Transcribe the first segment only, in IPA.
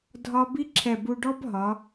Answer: dʱ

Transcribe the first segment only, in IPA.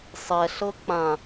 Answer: sˤ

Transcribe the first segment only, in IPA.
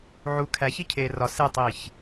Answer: ʕ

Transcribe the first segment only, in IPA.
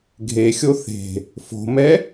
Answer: ɡʱ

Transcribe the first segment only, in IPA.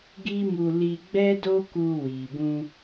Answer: ɡ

